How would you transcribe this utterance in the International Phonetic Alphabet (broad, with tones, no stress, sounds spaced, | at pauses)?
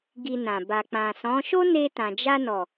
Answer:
ɡ i˧ n ã˨ b a˨ k͡p ã˨ s ɔ̃˨˦ ʃ o˦ n e˧ t ã˨ d͡ʒ a˧ n ɔ˨